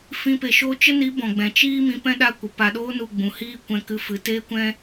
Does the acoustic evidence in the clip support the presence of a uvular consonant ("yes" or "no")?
no